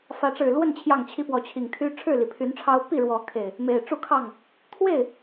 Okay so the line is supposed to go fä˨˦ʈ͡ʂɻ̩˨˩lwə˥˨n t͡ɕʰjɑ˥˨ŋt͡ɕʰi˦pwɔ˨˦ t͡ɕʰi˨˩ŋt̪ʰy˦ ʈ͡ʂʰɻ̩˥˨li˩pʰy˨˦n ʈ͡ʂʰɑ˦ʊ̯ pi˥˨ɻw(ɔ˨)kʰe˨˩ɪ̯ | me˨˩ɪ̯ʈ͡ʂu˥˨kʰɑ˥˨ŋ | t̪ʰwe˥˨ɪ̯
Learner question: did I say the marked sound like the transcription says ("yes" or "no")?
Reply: no